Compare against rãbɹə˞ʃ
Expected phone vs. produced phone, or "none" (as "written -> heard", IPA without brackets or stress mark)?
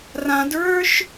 b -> d